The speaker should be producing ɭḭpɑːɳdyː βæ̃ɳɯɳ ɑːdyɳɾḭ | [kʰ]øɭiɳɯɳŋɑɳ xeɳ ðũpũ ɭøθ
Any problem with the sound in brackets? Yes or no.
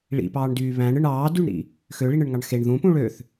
yes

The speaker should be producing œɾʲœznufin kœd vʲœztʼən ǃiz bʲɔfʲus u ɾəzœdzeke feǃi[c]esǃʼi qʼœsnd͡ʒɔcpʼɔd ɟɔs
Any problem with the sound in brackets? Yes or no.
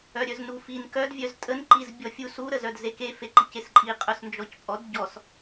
no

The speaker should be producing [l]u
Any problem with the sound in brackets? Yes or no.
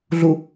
yes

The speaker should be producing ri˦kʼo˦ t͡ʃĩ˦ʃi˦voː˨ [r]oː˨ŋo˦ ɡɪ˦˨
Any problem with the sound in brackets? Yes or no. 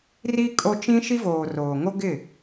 no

